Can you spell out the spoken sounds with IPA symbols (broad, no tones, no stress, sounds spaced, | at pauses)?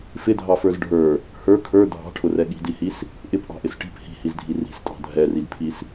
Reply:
f ɪ dʱ ɑ f ə˞ z ɖʱ ə˞ | h ə˞ kʰ ə˞ dʱ ɑ̤ ʈʰ ʊ r ɛ ɠ i̤ d i h i s | ʔ ɪ p ʔ ɑ̤ ʔ ɪ s ʈ i̤ p h i̤ h i z dʱ i r i̤ s tʼ ɑ̤ dʱ ɛ r i d pʰ i s